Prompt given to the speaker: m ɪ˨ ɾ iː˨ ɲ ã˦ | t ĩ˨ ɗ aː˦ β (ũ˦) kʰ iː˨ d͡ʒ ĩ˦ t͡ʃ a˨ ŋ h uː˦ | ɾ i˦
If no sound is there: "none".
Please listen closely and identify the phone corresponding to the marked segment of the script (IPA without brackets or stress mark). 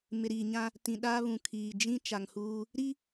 ũ˨